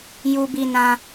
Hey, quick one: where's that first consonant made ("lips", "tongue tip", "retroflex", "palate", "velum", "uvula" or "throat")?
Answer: palate